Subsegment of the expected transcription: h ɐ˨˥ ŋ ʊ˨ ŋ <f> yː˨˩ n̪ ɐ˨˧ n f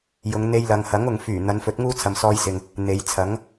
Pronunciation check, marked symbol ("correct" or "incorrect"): correct